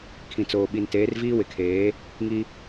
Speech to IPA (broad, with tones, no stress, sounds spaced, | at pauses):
kʰ ĩ˨ t͡s oː˨ ɓ i˨ n t eː˨˦ r v iː˦ w ɪ˨ kʰ eː˨˦ | ŋ i˦